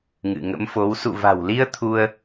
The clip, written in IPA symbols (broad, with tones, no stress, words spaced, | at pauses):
ŋɨ̰˧˨ŋə̰˧˥mfo˨˦w sṵ˧˨va̤˨˩wli˧ə̯ t̪ʰu˧ə̯